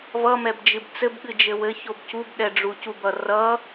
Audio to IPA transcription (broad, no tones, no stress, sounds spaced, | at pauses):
v ʌ m ɛ b d͡ʒ ɨ b t͡s ɘ b ɠ ɨ d͡ʒ ɘ w ɘ ç o b c u b ɗ ɛ ɖ͡ʐ u c u b ʌ r ʌ